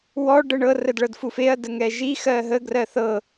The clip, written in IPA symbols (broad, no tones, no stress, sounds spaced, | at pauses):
w ɔ ɖ ə ɳ ɤ r ə d ɭ ɤ d f u f e ɐ̯ d ə ŋ ɛ ʒ i x ɜ ɦ ə ɡ r ɜ θ ɤ